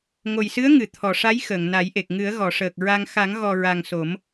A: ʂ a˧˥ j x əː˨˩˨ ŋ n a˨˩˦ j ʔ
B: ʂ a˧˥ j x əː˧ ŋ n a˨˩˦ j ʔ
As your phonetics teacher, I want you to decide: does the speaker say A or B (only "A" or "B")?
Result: A